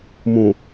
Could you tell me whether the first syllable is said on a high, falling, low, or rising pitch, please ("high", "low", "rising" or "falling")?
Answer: low